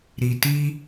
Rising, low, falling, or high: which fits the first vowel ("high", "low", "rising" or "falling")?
low